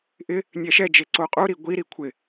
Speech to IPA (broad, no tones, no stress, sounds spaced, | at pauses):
ʔ ɪ | nʲ ɛ ʃ ɛ d͡ʒ e ǀ o qʼ u ɾ i ɡʷ i ɾ i kʷʰ ɪ